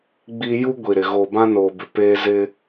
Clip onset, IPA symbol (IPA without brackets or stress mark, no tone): ɡ͡b